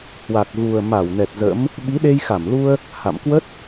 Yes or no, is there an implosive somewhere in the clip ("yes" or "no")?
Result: yes